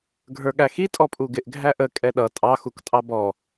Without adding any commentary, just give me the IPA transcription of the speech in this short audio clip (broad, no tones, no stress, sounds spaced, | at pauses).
ɡʱ ə˞ ɠ æ x i tʼ ɔ pʼ u ɡ ɪ ʔ ɡʱ æ ʔ ə kʼ ɛ ɗ ʌ tʼ ɑ x u k tʼ ɑ b ɔ